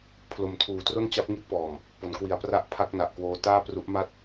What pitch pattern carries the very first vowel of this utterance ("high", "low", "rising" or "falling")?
low